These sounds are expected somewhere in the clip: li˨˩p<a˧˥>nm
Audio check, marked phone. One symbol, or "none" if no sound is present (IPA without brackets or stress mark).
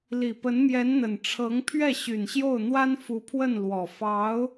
ə˧˥